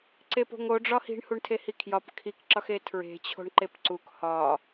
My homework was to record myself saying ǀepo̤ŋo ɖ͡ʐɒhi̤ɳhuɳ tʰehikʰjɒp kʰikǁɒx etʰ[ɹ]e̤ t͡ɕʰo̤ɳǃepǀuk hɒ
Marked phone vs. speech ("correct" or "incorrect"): correct